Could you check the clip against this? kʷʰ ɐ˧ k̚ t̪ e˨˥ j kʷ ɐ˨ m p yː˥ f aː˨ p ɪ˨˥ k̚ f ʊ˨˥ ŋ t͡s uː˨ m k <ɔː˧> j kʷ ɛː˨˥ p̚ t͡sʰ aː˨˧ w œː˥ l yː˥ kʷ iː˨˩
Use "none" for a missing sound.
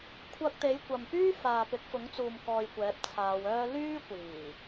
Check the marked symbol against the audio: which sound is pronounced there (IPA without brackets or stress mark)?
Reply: ɔː˧